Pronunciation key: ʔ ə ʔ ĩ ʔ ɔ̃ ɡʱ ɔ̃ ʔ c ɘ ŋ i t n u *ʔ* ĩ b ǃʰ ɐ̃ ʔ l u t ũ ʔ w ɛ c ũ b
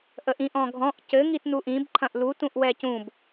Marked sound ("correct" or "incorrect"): correct